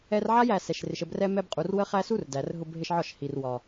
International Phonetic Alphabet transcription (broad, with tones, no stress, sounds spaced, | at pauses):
ɛ˧ r ʕ a˦ j æ˧ s ɛ˨ ʃ r ɪ˨ ʃ ə˧ b r ɛ˧ m ɛ˧ b qʼ u˨ r w ə˦ χ æ˦ s u˦ r d æ˨ r ɦ ʊ˧ b ɦ ɪ˧ ʃ ʕ ɒ˦˨ ʃ h i˨ r w ɒ˨